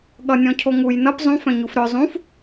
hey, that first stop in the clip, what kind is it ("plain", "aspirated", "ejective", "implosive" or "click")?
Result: implosive